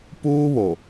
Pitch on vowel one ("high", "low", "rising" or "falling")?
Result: high